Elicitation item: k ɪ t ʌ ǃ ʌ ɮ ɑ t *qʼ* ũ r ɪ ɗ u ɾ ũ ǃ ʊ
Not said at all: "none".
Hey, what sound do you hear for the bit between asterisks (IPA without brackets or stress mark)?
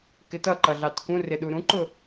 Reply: k